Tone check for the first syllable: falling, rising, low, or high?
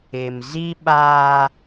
low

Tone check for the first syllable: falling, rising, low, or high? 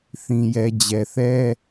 low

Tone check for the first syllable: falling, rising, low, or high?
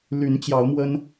rising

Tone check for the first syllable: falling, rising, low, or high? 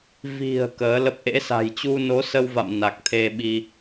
low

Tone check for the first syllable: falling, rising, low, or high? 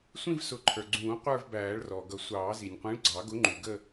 falling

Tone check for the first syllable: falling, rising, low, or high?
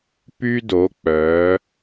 high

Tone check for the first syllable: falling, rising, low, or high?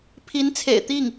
rising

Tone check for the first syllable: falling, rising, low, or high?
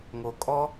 low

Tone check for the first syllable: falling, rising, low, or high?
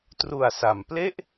low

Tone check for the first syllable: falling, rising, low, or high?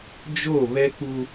falling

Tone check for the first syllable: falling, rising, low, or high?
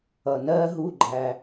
low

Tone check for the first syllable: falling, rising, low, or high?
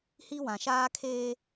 high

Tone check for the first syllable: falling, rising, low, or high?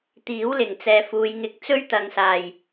rising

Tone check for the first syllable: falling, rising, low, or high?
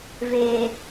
low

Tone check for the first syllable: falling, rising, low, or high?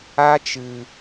high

